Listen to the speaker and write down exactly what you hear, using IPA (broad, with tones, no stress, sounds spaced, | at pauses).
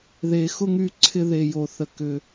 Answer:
ð e˨ x ʊ˥ ŋ y˦ ǀʰ ɪ˦ ð e˨ j o˨ θ ə˨ k ʏ˨